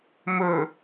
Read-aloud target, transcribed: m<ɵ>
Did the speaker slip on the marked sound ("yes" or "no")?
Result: no